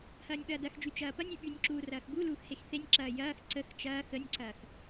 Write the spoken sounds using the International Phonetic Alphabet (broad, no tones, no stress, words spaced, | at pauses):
hɐːnʲɓɐːdɐxd͡ʒy t͡ʃɐːpɐnʲy ɓynʲǁuː rɐːxbuluːx hexθenʲǁɐː jɐːx ǀəx t͡ʃɐː xənʲǀɐːx